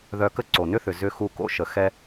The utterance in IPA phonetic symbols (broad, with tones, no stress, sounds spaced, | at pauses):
ð œ˧ k ə˥ ǀ o˩ n ʏ˥ θ ʏ˩ z ʏ˧ x u˧ k o̰˥ ʃ ə˩ x ɛ˧